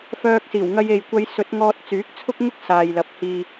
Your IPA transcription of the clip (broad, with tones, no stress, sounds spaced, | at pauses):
f œː˧ k̚ s iː˨˩ w ŋ ɐ˧ j e˨ j kʷ ɐ˧ j s ɵ˨˥ t̚ ŋ ɔː˧ t̚ t͡s yː˨˥ k̚ t͡sʰ ʊ˥ k̚ ŋ ʊ˥ k̚ s aː˨ j l ɐ˨ p̚ h iː˨